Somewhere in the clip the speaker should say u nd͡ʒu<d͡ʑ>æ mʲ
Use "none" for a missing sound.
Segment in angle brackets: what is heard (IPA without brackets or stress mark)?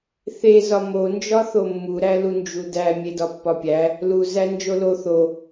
d